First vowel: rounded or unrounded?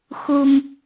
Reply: rounded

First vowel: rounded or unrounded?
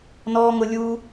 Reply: rounded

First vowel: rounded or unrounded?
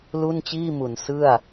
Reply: rounded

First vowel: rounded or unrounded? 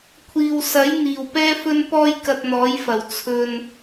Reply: unrounded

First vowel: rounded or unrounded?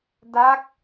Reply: unrounded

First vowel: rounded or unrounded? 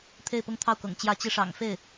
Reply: unrounded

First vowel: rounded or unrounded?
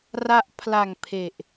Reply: unrounded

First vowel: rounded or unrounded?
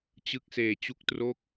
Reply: unrounded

